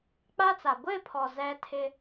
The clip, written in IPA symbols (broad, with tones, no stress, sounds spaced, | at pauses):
k͡p a˦ t͡s a˨ ɡʷ ɪ˦˨ pʰ ɔ˨ z ɛ˦ tʰ ɪ˦